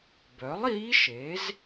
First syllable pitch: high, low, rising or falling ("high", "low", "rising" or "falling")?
rising